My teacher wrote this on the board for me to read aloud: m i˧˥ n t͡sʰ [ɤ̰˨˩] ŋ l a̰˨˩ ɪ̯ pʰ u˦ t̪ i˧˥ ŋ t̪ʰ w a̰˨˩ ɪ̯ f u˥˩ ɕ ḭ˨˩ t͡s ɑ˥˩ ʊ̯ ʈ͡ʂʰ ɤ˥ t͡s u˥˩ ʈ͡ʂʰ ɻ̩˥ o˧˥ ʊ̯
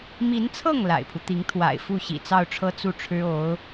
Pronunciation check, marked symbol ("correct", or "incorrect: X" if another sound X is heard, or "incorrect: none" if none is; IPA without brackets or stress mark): incorrect: ɤ˥˩